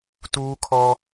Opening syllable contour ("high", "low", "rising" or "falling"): high